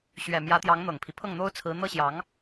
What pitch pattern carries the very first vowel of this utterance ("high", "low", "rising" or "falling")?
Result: low